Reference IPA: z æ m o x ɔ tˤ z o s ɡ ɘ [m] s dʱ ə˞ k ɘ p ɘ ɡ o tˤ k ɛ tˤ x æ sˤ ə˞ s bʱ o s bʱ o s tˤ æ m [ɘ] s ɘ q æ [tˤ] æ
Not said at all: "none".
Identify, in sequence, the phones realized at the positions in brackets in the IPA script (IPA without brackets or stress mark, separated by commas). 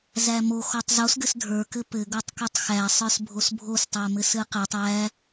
none, ɘ, tˤ